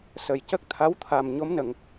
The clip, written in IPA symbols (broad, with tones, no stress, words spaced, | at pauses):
sə˨˩j cə˦˥k̚t̪ʰa˧˥wt̪ʰa˨˩m ɲo˧˥mnə˨˩˨ŋ